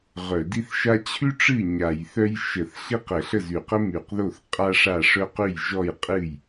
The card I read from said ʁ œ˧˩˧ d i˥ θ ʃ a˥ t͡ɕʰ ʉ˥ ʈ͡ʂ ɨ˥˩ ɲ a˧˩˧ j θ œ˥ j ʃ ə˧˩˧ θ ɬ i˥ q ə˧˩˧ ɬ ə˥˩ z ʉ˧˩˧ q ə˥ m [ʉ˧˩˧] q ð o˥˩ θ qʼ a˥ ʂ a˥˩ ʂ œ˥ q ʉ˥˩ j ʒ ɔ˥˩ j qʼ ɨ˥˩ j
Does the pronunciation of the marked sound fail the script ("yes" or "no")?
no